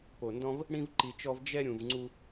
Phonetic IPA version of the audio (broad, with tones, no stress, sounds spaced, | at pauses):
p o˨ n d ɔ̃˧ v | ɽ ĩ˧ v ǃ i˨ t͡ʃ ɔ˧ v d͡ʒ ɛ˧ ɾʲ ũ˨ v ŋ͡ǀ u˧